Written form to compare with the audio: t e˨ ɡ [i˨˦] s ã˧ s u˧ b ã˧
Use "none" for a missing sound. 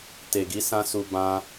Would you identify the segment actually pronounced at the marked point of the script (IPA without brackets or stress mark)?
i˨˦